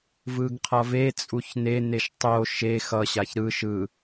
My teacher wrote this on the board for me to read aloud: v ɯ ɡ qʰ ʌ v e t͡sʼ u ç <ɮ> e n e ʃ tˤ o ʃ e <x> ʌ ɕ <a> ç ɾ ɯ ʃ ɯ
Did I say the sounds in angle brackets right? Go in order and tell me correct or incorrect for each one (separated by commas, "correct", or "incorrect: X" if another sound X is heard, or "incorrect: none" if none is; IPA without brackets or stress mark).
incorrect: n, correct, correct